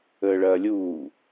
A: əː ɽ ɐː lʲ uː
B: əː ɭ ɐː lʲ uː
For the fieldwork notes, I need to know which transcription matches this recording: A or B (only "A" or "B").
B